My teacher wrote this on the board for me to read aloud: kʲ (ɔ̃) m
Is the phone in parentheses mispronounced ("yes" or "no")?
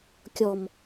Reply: yes